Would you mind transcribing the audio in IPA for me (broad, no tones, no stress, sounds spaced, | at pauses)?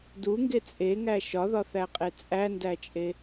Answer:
d u ŋ ɡ e t͡sʼ e ŋ æ ʃ ɒ ð ɒ θ æ qʼ e t͡sʼ æ n d æ t͡ʃʼ e